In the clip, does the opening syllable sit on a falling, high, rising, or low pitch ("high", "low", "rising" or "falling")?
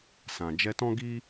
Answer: low